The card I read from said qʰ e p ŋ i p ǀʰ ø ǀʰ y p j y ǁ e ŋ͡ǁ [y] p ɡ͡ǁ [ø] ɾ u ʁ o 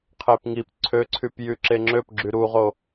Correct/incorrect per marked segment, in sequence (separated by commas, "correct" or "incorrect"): incorrect, incorrect